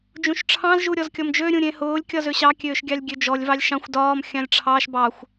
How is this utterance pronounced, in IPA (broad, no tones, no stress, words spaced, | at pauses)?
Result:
d͡ʒũʃʈ͡ʂʰɑ̃z ʒuɾʲɔzkʲɔmd͡ʒø ɾʲũɾʲẽhʊːlʲ kʲɒzøɕɑ kʲøːʃɡʲɑlʲɡʲød͡ʒɔlʲ vɑlʲʃɑ̃xʷ dɒːm xʲɑ̃lʲʈ͡ʂʰɑʃ bɑxʷ